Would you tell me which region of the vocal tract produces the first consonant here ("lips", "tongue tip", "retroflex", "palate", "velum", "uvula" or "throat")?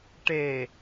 retroflex